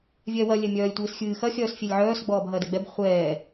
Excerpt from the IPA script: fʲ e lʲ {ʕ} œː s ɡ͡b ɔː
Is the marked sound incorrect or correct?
correct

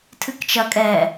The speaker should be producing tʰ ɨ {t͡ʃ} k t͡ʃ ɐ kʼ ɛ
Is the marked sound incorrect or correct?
incorrect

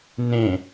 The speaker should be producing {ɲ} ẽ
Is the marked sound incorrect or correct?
incorrect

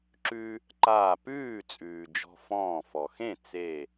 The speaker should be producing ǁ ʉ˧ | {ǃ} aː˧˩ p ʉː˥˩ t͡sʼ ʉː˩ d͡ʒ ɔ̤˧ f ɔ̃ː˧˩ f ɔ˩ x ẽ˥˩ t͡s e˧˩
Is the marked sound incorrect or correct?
correct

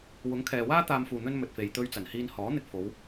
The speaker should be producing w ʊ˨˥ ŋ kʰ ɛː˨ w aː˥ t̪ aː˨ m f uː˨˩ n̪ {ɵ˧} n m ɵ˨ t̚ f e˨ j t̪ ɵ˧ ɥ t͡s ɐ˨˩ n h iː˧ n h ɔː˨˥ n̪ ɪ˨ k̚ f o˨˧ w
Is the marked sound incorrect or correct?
correct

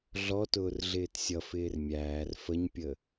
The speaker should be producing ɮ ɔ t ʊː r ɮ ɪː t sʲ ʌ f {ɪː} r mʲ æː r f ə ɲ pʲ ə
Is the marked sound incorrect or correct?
correct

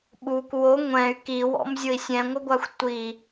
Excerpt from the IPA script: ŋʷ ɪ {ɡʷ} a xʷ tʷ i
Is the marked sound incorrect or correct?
correct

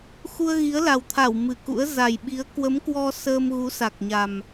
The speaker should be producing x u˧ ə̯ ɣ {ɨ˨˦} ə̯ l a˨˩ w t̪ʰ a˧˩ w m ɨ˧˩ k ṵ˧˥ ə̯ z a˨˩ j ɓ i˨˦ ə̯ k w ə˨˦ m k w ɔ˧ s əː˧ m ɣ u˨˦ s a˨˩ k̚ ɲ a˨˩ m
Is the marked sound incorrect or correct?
incorrect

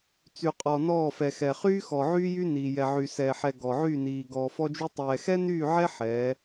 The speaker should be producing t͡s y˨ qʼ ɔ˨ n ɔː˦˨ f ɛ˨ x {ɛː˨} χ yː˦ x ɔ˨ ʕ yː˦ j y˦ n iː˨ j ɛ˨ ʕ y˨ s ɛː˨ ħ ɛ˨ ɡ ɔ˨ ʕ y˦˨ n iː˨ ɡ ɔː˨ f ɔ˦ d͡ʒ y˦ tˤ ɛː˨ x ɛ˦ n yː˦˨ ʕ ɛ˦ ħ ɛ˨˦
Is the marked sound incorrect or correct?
incorrect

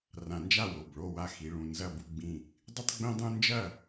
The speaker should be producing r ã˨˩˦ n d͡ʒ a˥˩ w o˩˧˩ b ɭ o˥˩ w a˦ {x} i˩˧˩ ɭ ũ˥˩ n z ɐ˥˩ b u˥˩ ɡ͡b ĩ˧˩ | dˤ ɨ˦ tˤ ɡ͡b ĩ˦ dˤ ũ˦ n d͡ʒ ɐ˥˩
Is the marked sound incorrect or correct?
correct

